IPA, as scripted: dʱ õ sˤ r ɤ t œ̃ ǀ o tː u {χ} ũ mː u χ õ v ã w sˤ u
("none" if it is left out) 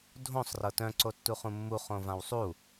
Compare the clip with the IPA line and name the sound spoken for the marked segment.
χ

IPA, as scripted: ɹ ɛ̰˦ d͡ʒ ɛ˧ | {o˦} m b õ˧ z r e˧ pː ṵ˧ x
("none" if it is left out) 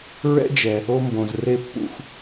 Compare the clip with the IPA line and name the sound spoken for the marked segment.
o˦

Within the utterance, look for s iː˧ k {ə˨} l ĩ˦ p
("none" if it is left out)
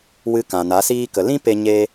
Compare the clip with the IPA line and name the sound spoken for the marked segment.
ə˨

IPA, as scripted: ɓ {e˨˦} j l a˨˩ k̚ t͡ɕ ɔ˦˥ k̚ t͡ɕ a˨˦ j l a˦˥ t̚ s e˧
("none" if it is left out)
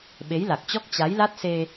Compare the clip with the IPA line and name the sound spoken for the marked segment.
e˨˦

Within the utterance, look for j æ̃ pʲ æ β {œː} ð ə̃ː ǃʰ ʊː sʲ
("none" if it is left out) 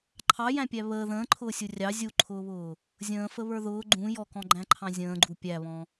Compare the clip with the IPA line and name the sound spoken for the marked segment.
əː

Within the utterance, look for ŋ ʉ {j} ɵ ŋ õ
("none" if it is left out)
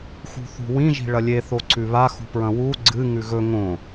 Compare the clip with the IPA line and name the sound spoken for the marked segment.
ɣ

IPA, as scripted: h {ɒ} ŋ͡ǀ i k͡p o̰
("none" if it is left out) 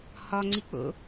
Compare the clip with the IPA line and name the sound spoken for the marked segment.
ɒ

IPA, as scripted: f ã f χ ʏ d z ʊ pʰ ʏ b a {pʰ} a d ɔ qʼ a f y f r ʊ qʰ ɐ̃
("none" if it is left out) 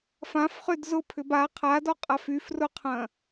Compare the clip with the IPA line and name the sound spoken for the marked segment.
qʰ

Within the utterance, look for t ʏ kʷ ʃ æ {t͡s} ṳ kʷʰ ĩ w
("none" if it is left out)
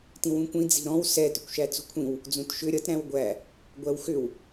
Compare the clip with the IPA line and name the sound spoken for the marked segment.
t͡s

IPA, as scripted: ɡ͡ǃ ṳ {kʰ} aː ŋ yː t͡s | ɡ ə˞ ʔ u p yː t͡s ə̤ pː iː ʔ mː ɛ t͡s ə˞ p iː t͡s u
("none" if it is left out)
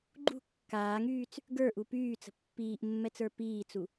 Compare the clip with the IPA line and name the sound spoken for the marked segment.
kː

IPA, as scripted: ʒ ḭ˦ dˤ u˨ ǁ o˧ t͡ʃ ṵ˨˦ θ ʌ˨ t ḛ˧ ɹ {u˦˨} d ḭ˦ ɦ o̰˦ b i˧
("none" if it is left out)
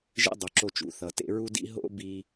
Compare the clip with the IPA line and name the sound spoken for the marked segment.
u˦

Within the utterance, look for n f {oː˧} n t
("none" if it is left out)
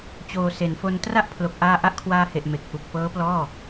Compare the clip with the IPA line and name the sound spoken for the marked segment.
o˧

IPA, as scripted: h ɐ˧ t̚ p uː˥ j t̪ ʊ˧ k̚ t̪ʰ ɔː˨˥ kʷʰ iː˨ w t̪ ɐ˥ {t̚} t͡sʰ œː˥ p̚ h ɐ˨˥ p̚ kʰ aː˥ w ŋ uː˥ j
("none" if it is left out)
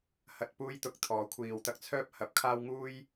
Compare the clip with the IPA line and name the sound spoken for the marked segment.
k̚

